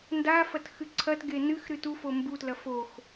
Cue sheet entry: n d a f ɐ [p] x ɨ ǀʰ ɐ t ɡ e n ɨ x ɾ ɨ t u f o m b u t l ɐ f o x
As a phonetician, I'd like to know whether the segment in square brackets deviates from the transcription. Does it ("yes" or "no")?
yes